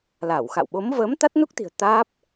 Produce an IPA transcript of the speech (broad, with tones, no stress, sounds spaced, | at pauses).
l a˧˩ w x a̰˧˨ w ɓ o˨˦ m v əː˨˦ m t̪ a˦˥ t̚ n u˦˥ k̚ t̪ i̤˨˩ ə̯ t̪ aː˦˥ p̚